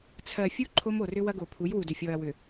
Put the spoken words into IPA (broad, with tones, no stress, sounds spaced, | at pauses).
t͡sʰ ɜ˨ fʲ u˦ ǃʰ o˦ m o˨ r ʏ˦ w ɐ˦ ɡ o˨ pʰ u˨˦ j w u˨ d ʏ˨ fʲ ɔ˨ ɐ̯ w ʏ˨